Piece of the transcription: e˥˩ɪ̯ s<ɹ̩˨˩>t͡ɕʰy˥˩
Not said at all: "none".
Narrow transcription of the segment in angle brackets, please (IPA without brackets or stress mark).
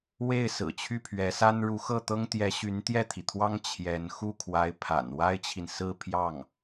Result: ɹ̩˨˩